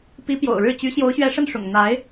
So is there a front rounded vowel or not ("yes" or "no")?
yes